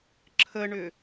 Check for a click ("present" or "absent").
present